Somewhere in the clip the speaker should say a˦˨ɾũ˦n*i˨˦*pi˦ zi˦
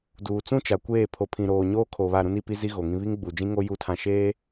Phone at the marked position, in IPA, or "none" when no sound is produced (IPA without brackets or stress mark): i˨˦